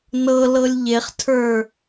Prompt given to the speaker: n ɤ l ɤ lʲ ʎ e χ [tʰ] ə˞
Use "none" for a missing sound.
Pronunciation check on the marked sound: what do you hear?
tʰ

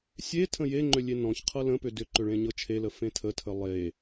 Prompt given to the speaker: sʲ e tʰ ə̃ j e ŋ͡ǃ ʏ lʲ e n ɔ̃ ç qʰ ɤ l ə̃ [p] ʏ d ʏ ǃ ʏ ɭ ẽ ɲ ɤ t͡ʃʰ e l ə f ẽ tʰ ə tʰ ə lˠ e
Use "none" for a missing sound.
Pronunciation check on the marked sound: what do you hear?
p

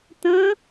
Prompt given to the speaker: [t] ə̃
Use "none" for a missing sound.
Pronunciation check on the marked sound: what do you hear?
t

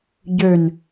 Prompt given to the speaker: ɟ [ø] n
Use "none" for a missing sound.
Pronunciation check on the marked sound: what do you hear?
ø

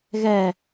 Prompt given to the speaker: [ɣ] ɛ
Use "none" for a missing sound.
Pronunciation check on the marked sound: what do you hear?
ɣ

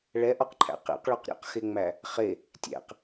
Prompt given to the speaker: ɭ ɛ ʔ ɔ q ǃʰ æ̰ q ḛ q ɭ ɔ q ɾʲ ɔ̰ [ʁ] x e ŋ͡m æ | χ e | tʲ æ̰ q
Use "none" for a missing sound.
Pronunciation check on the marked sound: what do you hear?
q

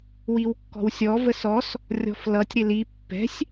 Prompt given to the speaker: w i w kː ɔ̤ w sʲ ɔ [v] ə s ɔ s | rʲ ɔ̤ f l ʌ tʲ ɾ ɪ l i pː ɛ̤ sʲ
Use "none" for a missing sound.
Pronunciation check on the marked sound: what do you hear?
v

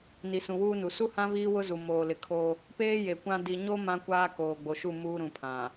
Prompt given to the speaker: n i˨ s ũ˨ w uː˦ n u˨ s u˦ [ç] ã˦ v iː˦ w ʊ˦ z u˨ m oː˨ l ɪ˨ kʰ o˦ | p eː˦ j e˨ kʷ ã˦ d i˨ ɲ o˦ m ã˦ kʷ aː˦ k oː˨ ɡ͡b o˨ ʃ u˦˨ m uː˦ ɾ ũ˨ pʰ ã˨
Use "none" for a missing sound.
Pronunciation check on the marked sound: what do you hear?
h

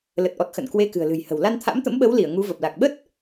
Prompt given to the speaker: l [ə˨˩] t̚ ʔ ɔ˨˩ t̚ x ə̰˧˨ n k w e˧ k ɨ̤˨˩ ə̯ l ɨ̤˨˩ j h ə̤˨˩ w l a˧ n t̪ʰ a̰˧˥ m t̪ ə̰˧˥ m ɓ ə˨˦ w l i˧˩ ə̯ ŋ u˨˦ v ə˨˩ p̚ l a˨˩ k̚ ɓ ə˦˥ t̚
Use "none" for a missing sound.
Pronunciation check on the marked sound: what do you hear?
ə˨˩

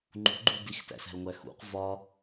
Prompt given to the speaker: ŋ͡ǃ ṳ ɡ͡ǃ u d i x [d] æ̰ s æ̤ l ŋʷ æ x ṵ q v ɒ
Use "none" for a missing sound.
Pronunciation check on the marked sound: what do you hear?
t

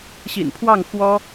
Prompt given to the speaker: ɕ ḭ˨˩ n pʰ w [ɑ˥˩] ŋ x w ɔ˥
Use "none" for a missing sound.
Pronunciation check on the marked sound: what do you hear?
ɑ˥˩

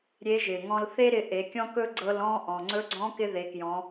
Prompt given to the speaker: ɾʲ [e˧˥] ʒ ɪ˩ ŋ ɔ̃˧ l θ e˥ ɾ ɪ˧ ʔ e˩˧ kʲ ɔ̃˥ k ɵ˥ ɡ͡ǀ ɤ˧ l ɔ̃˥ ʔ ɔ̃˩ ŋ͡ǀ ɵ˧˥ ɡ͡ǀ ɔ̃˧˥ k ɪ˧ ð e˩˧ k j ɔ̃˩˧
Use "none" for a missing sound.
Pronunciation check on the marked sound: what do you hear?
e˧˥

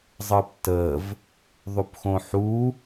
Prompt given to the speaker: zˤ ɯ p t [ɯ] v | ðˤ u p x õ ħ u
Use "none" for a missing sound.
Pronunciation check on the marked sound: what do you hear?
ə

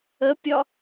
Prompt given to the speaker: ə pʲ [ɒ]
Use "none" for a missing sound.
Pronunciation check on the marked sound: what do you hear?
ɒ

